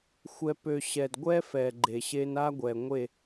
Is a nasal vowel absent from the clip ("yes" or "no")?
yes